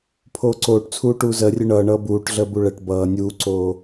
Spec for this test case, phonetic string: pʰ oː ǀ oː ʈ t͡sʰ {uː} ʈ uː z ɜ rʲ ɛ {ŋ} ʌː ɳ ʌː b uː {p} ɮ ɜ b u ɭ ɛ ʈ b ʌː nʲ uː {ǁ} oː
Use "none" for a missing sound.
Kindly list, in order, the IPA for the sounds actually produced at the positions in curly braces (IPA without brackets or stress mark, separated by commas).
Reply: uː, ɳ, ʈ, ǀ